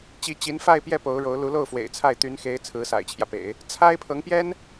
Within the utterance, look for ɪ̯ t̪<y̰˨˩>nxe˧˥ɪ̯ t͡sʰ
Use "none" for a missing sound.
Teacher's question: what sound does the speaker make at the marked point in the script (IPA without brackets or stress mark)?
y˧˥